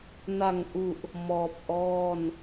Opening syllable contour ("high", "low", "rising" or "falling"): low